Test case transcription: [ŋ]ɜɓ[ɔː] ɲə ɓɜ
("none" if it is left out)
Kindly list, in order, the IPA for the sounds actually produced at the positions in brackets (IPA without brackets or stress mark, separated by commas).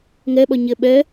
ŋ, ɔ